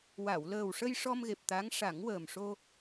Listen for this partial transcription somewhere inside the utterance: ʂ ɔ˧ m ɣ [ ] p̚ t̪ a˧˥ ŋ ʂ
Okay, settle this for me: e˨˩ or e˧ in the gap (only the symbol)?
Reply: e˨˩